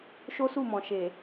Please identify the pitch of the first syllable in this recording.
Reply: high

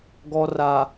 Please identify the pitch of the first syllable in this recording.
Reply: low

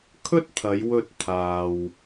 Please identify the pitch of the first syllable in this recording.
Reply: high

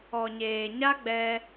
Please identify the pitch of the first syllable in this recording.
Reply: low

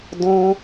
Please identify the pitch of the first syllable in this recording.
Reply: high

